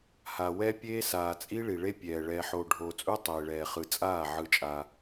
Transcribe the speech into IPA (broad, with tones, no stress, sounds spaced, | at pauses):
h a˨ w ɛ˦ pʲ eː˦ s aː˨ t͡sʼ i˦ ɭ i˨ ɭ e˦ pʲ ɛː˨ ɭ ɛː˨ ħ oː˨ ɖʱ oː˨ t͡sʼ u˦ tˤ eː˨ ɭ ɛː˨ χ ɯ˨ t͡sʼ aː˦˨ ʕ ɯ˦ t͡ʃʼ a˦